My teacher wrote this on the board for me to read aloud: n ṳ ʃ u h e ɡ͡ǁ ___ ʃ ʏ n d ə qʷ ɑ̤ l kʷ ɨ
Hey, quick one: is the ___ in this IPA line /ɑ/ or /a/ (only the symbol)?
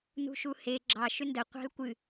ɑ